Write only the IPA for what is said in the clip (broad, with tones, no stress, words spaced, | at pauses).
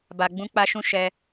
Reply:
ba˧ɡ͡bũ˦k͡pa˦ʃũ˦ ʃɛ˧